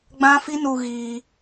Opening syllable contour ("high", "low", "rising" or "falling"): high